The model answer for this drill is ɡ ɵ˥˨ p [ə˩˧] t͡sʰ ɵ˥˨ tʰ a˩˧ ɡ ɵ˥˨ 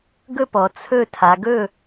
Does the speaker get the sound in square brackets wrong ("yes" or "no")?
yes